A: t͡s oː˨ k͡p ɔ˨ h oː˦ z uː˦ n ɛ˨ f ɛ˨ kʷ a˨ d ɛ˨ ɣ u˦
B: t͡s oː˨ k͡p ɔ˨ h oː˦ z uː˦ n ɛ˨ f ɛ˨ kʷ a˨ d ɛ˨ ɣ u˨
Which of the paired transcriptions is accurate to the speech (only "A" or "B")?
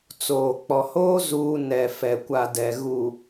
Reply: B